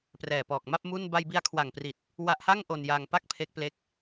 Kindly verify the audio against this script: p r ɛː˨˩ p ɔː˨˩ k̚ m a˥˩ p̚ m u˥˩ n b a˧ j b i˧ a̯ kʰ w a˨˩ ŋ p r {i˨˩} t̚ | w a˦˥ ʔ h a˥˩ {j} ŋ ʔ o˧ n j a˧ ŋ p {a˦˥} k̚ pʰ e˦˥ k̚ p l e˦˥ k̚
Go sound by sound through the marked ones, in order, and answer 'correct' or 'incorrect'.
correct, incorrect, incorrect

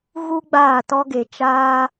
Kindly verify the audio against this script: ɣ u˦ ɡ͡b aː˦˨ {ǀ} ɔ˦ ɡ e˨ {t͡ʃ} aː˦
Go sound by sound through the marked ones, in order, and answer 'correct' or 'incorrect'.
incorrect, correct

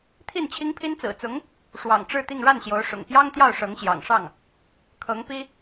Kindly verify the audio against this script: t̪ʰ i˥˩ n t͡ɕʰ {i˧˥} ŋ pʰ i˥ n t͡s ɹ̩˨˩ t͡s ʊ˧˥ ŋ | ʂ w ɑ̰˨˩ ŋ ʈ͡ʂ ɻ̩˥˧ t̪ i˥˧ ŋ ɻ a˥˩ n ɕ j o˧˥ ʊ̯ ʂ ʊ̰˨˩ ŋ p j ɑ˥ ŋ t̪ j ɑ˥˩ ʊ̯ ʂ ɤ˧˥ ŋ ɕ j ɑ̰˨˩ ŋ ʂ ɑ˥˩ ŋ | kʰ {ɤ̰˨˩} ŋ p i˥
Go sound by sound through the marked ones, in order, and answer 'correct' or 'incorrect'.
incorrect, incorrect

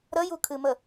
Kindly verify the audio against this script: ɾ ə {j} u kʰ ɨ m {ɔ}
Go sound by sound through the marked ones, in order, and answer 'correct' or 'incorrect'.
correct, incorrect

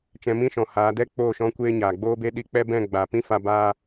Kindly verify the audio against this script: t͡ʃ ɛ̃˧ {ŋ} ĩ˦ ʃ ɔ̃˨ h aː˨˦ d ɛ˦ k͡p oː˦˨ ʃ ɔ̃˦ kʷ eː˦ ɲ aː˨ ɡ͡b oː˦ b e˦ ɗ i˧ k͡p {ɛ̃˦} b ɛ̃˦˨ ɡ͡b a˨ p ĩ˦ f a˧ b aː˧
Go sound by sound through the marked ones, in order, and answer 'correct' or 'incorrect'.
incorrect, incorrect

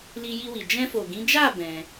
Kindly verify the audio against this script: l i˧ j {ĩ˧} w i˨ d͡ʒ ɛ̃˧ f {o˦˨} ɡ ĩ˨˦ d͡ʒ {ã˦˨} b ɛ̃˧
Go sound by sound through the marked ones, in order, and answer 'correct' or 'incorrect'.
incorrect, incorrect, incorrect

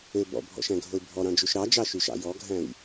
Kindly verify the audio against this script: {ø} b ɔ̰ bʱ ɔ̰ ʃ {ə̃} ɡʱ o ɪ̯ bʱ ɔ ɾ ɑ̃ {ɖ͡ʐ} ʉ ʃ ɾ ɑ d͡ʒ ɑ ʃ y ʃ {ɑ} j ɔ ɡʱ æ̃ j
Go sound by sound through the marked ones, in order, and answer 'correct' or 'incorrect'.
correct, incorrect, incorrect, incorrect

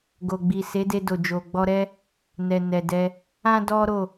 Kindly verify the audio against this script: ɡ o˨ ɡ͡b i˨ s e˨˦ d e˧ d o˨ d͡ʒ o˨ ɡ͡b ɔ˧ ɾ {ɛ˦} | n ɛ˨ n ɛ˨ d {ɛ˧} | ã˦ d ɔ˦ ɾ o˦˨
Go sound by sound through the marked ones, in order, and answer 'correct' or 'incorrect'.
correct, correct

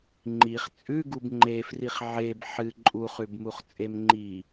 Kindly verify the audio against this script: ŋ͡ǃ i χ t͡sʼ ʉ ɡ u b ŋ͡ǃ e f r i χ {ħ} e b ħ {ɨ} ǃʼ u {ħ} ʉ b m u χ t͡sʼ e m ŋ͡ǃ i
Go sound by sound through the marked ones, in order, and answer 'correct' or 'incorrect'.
incorrect, correct, incorrect

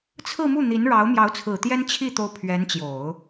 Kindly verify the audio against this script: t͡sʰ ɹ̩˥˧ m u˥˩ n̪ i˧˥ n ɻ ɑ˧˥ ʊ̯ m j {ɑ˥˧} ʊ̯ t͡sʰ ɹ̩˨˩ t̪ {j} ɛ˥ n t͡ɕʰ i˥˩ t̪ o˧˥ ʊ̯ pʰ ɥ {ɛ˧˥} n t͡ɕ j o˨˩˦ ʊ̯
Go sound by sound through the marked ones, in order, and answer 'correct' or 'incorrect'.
incorrect, correct, correct

